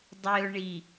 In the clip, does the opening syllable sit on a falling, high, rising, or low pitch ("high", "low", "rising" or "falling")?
low